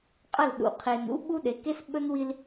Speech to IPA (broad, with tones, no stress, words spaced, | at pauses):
qʼɐ˦˨lɗṵ˨ qʰe˨n ṵ˦ ɓu˦ɗe˨˦ke˦s ɓɵ˦nwi˦l